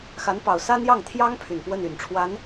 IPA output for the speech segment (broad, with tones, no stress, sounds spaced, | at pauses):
x a˧˥ n p ɑ˨˩ ʊ̯ s a˥ n j ɑ˥˩ ŋ t̪ʰ j ɑ˥ ŋ pʰ y˨˩ n p w ə˥˩ n y˨˩ n ʈ͡ʂʰ w a˧˥ n